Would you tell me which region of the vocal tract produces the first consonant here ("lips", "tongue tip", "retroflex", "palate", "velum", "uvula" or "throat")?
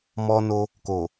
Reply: lips